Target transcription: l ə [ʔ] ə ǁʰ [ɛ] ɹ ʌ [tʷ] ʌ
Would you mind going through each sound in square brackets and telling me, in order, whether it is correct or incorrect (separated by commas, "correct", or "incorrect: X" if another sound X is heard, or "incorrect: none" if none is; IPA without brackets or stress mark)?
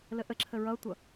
correct, incorrect: ə, correct